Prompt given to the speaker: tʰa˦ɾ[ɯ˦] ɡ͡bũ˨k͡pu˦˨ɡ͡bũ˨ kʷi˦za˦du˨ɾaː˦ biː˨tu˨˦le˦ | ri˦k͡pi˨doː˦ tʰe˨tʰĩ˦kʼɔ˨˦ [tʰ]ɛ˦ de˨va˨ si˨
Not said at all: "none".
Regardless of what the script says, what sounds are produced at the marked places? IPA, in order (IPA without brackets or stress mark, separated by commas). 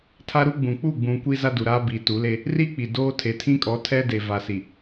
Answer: u˦, tʰ